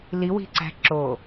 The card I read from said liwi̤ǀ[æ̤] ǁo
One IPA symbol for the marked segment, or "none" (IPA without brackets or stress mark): æ̤